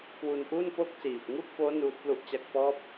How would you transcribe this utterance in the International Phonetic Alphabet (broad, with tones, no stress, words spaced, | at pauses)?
kwu˧nʔu˥˩n po˥˩k̚siː˨˩p̚ ŋu˥˩k̚foː˦˥ nuː˦˥t̚plu˥˩ʔt͡ɕa˥˩k̚ pɔː˦˥p̚